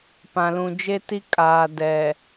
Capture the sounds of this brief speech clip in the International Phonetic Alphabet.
p ã˨ l ũ˨ d͡ʒ e˦ t i˦ kʼ aː˨ d ɛ˨

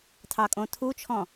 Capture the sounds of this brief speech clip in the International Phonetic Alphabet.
tʰ ɑ kʼ õ tʰ u t͡ʃʰ ɔ̃

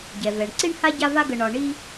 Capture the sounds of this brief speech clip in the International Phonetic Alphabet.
ɟ ɛ˩ v ɛ˩ ɳ ǀ i˦ ɳ h a˦ ɟ a˦ v a˦ ɡ ə˨ ɳ ɒ˨ ɳ i˦

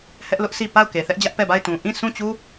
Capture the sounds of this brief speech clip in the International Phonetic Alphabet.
h ɛ˦ ʔ l ʊ˦ ʔ s i˦˨ p a˦˨ ʊ̯ k e˨ θ ɛ˦ ʔ d͡ʑ ä˦ ʔ p ɛ˦˨ b a˦˨ ɪ̯ t ũ˨ ʔ ĩ˦˨ s ũ˦˨ t͡ɕ u˦

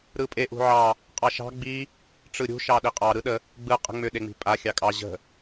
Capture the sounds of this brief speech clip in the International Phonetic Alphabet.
ɾ ɯ pʼ e ʔ ṳ ʕ ɑ | qʼ ɑ ʃ ɑ̤ ɡ͡b i | ʈ͡ʂ ɯ ɾʲ ṳ ʃ ɑ ɗ i qʼ ɑ ɾ ɯ ɗ ə | ɡ͡b ɯ qʼ ə̤ ŋ͡m ʏ ɗ e ŋ͡m i̤ pʼ a xʲ ɑ kʼ ɑ ʑ ə̤

